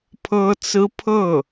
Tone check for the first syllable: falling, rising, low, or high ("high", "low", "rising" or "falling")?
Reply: high